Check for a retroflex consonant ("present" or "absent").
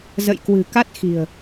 absent